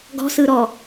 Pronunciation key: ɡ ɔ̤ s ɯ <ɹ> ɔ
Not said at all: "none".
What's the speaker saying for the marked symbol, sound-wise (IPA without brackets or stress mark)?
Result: ɾ